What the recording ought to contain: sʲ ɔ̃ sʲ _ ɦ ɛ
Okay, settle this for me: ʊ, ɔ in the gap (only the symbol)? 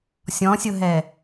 ʊ